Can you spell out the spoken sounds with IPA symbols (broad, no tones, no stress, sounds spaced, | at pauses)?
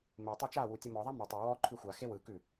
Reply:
m e tˤ a t͡ʃ a w u tʲ ɯ m ɔ ðˤ a m ʉ tˤ u w ɔ ǃʰ ʉ xʷ a x e w ɯ k ʉ